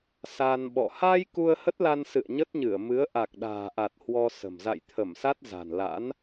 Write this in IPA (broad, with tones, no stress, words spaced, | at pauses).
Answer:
sa˧nɓɔ̰˧˨ ha˧j ku˧ə̯hə˦˥t̚la˧n sɨ̰˧˨ə̯ɲə˦˥t̚ɲɨ˧˩ə̯mɨ˨˦ə̯ ʔa˨˩k̚ɗa̤ː˨˩ʔa˨˩t̚ hwɔ˧sə̤˨˩m za̰˧˨jt̪ʰə˧˩msa˦˥t̚ za̤˨˩nla̰˧˥n